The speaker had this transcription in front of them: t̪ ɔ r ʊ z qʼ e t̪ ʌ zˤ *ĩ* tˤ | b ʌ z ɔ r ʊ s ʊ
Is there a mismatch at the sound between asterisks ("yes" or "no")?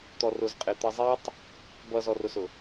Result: yes